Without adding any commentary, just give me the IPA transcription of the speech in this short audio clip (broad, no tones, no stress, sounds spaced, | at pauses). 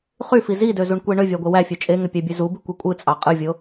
χ y f i z i d ø z u ɳ kʷ e ɳ ø vʲ ɑ ɡʷ e w æ fʲ ø t͡ʃʼ e ŋ ø pʲ æ bʲ ø z u b i kʷ e kʷʼ ɯ t͡sʼ ɑ qʼ ɯ vʲ o